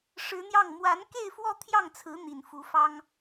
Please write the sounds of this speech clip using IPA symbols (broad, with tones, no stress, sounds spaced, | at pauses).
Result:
ʂ ɻ̩˧˥ n̪ j ɑ˥˩ ŋ m w a˧˥ n k e˥˧ ɪ̯ f w ɔ˥˧ t̪ʰ j ɑ˥˩ ŋ t͡sʰ ɹ̩˧˥ n̪ i˨˩ n f u˧˥ f ɑ˥ ŋ